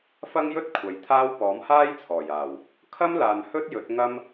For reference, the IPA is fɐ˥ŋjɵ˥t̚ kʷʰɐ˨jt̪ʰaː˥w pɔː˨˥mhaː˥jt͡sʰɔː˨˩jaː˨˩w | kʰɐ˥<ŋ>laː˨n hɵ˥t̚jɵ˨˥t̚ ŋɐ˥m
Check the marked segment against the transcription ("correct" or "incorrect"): incorrect